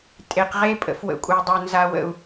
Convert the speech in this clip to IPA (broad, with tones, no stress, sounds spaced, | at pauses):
tʼ e˨ q ʁ e˦ pʼ ə̰˨ f w ə̰˨ kʷʼ ə˨ w dˤ o˨ n z a˨ w ə̰˨ u̯